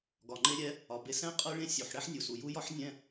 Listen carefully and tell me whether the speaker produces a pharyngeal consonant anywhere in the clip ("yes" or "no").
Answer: yes